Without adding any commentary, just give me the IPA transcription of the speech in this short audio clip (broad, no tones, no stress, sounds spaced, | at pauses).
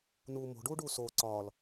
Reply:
n uː m o̤ ɖ uː ɖ uː s oː ǀ ɒː l